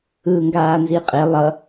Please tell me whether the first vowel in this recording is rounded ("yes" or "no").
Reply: no